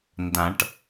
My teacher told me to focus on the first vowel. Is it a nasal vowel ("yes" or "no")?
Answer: yes